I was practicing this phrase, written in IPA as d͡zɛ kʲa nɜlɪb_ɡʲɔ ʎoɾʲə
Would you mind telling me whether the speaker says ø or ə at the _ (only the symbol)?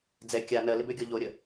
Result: ø